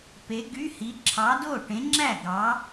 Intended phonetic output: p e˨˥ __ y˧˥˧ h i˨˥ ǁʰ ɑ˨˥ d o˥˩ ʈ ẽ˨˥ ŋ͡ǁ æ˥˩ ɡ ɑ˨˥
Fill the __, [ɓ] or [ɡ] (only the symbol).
ɡ